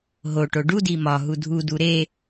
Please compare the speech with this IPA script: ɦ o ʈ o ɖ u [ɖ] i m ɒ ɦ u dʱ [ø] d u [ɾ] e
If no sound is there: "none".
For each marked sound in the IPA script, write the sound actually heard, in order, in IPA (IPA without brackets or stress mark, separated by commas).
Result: d, u, ɾ